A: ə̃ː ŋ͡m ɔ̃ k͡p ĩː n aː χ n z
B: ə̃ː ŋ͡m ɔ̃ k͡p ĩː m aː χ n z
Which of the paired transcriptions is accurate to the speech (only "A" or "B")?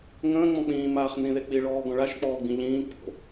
B